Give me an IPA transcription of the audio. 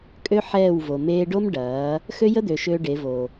kʼ ø˦ ħ ɛː˦˨ w v o˨ m eː˧ ɖ o˦ m ɖ ɐː˨˦ | x ø˦ j ə˦ d̪ ø˨ ʃ ø˧ ɖ e˨˦ v o˨

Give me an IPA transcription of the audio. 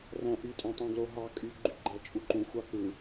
r æ̃ ʔ y tʼ æ̃ tˤ ũ ɡ l o ɦ ɑ kʼ y ɡ͡ǃ y ɡ͡ǃ æ t͡ʃʼ u ǃ ũ xʷ ɑ k ɯ

